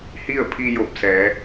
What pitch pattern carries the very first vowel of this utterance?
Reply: falling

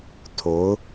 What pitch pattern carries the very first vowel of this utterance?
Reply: rising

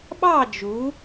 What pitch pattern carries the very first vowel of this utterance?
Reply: falling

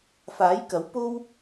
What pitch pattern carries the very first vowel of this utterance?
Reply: rising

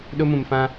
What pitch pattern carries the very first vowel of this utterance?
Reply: high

